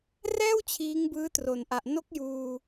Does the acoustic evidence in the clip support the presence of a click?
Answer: no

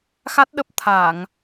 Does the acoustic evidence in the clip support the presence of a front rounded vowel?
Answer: no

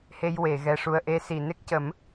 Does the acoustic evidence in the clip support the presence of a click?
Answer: no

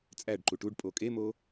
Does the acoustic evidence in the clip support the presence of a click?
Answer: yes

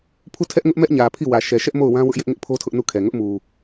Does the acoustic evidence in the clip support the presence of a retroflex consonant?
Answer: no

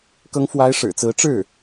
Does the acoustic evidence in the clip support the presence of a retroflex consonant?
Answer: yes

